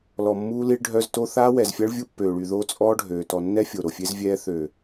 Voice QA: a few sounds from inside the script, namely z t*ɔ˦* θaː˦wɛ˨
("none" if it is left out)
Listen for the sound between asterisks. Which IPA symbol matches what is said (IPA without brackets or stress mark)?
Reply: o˦